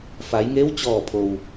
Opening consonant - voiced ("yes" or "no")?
no